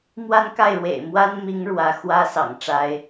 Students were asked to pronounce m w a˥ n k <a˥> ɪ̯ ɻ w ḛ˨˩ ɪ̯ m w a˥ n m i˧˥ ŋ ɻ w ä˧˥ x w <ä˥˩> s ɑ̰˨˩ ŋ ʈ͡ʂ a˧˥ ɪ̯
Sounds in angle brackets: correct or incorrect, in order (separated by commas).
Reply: incorrect, incorrect